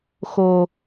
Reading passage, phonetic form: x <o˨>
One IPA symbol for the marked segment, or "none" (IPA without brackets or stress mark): o˨